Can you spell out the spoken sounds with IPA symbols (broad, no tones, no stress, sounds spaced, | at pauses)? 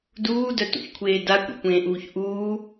d uː d œ t ṵ ç kʷʰ eː d a kʷ ḛ kʷ ẽː ʔ uː ç ʔ uː